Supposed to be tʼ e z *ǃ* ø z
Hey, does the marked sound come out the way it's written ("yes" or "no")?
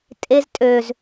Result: no